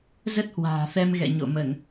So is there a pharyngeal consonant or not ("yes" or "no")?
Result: no